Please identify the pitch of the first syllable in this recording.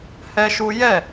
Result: high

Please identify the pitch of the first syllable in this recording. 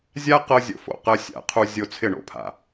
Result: high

